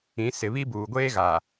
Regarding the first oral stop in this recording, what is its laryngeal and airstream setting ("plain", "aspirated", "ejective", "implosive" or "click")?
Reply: plain